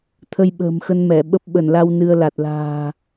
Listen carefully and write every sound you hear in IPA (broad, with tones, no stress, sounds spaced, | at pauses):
t̪ʰ ə˧ j ɓ ə̤ː˨˩ m x ə˧ n m ɛ˧˩ ɓ ə˦˥ p̚ ɓ ə˧˩ n l a˧ w n ɨ˧ ə̯ l a˨˩ t̚ l a̤ː˨˩